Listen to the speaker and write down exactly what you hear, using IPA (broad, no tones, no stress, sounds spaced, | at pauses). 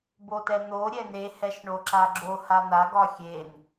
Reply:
b o t ɛ n̪ o ɾʲ ɛ n e h ɛ ʃ ɳ o ǁ a ɡ͡ǁ o h a n̪ a ɡ ɒ xʲ e n